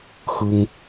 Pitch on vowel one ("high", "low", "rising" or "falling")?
high